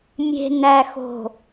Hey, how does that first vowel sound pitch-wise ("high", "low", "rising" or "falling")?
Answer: low